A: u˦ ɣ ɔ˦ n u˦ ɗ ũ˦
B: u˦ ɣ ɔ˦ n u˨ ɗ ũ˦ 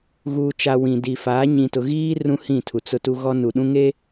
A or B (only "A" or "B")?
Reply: B